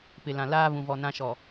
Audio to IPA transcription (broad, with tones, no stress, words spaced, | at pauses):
pɪ˨lã˨ laː˦ βũ˨vɔ˨nã˦ʃɔ˨